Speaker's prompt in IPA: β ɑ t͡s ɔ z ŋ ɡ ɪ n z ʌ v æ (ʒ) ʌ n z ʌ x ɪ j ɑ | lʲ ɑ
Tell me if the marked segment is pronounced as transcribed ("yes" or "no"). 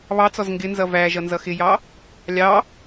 yes